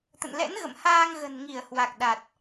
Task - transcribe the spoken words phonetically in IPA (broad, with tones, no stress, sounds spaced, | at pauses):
t̪ ə̰˧˨ n l ɛ̰˧˥ n ɣ ə̰˧˨ m h aː˧ ŋ ɣ ə̤˨˩ n ŋ i˧˩ ə̯ h w a˨˩ k̚ ɗ a˨˩ t̚